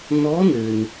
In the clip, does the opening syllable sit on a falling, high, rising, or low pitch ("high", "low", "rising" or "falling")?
rising